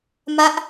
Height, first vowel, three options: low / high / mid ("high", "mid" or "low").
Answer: low